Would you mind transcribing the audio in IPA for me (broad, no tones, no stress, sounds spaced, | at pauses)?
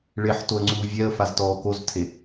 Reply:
ɭ e ħ t o ə̯ ŋ͡ǀ uː vʲ ɛ ə̯ f a z t ɔː k o z tʰ e